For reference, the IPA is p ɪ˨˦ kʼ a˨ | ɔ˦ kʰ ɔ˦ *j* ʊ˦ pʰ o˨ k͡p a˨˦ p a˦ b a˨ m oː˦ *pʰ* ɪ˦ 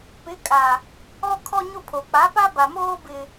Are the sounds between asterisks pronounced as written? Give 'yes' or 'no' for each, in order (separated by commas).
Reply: no, no